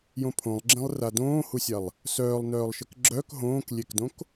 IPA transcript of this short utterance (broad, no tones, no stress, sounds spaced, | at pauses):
j õ pʰ õ lˠ ɡ͡ǁ ɛ̃ lˠ r a d õː h u sʲ a lˠ | s œː lˠ n œː lˠ ʃ ɘ k ɡ͡ǁ œ k ɦ õː k lʲ e k d õ k